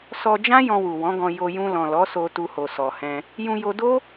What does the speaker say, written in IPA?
s ɔ˧ d͡ʒ ã˦ j ɔ̃˧ w u˨ w ɔ̃˨˦ ɡ ɔ̃˧ j o˧ j ũ˧ l ɔ̃˨ l ɔ˨˦ s o˧ t u˧ h o˨ s ɔ˨ h ɛ̃˧ | j ũ˧ j o˧ d o˦

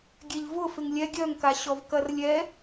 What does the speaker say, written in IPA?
ɡʲ ɛ ʎ v ʊ f ɪ ŋ lʲ ɛ ɡʲ œ ŋ k a ɕ ɔ v k ɐ r lʲ ɛ

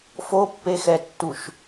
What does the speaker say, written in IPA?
f o pː e x ɛ tː u ʃ

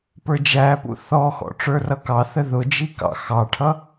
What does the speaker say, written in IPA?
p ə˞ d͡ʒ æ p ṵ θ ɔ x ɔ̰ ʈ͡ʂ ə˞ r ʌ k ɑ θ ə ð ʊ d͡ʒ i k ɑ̰ x ɑ ʈʰ ʌ

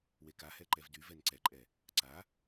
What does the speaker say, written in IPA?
w e k a h ɛ ǃ ɛ v d y v ɛ n ǀ ɛ ǃʼ ɛ | ǀ a

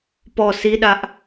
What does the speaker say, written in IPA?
p ɔ s i ɗ a ʔ

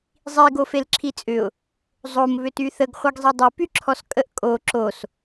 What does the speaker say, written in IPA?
zˤ i ɡ o f e l ǁʰ i t͡sʼ ʏ ʊ̯ | zˤ o m β ʏ t y θ ə ɡ χʷ ɐ ɡ zˤ i dˤ y p y ǁʰ ɔ s kʼ ə ʔ kʼ o ǁ o s

